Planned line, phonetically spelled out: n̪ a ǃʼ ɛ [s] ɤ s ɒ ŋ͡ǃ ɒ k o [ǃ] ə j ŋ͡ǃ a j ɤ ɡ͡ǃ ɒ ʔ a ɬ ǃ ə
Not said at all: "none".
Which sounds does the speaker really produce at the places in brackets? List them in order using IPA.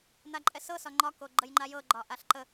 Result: s, ɡ͡ǃ

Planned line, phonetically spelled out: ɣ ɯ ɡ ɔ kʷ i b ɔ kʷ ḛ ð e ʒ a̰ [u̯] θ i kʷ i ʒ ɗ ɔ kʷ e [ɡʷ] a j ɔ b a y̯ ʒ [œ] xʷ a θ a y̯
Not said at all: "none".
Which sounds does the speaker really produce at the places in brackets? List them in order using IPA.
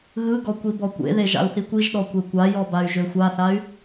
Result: u̯, kʷ, ø

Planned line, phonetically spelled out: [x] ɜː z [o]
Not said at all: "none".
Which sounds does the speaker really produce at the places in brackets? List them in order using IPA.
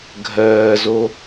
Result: ɡʱ, o

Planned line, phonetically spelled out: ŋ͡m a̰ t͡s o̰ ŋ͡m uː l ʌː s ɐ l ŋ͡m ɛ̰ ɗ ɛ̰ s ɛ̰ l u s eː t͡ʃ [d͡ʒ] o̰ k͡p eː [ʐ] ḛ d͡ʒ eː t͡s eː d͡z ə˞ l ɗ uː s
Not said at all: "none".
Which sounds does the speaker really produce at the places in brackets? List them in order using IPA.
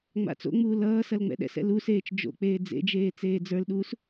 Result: d͡ʒ, d͡z

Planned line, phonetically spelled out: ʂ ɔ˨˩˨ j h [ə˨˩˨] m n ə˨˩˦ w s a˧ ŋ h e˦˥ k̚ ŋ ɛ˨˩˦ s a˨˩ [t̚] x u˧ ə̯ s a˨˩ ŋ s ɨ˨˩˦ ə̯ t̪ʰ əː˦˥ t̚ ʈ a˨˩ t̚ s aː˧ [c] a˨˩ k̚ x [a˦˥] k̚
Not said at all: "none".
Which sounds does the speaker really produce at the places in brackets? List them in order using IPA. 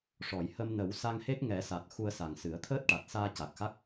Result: ə˧, t̚, c, a˦˥

